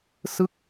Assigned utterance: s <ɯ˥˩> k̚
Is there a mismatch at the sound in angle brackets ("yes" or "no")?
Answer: no